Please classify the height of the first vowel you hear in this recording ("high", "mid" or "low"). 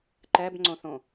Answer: mid